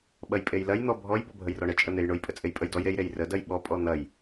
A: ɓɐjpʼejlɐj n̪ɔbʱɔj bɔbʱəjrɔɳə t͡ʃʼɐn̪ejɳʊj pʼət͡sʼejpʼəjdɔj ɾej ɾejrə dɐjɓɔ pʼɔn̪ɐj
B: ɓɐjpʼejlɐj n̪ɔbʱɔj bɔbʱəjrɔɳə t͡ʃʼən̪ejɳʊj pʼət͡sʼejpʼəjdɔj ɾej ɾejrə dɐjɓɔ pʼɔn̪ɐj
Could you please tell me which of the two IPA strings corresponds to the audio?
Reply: B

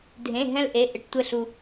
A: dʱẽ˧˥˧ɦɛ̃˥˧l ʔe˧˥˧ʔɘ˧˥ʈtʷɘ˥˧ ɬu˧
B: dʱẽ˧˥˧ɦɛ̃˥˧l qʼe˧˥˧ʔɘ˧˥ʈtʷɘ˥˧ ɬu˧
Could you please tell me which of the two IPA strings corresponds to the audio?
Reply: A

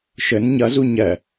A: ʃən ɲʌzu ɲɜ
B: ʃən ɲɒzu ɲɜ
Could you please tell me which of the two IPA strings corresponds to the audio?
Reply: A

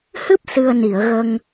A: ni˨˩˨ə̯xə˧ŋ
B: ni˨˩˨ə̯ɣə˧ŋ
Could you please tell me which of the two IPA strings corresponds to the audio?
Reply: B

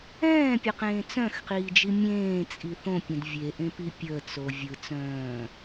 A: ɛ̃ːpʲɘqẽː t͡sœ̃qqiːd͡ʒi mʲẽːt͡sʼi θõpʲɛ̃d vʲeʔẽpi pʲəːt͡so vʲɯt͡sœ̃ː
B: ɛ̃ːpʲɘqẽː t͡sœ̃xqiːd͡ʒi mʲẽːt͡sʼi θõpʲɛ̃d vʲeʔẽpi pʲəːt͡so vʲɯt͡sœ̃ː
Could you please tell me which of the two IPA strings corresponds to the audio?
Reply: B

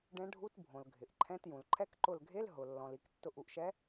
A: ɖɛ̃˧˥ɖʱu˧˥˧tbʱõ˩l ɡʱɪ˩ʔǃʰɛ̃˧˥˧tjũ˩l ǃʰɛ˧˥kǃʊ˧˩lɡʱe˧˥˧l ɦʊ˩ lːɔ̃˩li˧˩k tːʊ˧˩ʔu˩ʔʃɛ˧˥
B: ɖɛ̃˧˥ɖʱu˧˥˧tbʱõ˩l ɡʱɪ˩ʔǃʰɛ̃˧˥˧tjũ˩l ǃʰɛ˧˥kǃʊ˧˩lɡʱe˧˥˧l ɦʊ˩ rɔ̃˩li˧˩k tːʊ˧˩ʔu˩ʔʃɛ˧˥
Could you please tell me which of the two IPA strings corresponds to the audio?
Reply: A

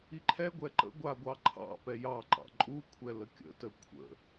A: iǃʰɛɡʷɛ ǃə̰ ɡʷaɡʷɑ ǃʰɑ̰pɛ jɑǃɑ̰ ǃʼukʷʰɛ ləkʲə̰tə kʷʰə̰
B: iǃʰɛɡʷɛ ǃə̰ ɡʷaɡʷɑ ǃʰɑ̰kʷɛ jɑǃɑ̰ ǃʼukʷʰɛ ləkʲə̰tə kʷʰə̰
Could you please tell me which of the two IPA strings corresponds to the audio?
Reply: A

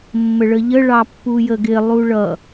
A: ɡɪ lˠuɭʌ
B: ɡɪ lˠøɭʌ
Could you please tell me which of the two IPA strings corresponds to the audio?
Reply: A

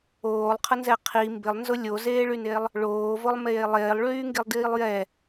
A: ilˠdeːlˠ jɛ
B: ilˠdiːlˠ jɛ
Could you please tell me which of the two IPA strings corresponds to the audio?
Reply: B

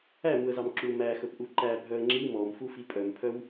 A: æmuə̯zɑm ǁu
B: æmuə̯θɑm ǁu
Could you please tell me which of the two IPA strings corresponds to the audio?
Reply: A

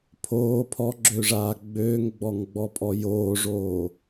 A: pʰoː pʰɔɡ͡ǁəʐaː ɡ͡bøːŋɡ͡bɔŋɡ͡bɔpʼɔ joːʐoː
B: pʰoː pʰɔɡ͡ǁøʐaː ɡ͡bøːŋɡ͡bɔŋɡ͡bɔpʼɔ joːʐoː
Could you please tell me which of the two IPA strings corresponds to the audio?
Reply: B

